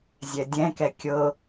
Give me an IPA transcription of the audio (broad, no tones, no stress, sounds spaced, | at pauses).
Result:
zʲ ɛ dʲ ɛ̃ k ɛ kʲ ɤ